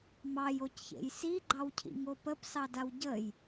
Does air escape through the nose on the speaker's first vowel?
no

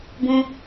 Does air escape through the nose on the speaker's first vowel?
yes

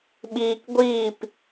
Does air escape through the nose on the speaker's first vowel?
no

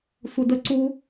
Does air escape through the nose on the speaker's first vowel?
no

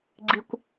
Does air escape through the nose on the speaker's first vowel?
no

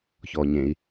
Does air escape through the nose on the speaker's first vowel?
no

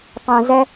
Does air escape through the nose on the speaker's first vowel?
yes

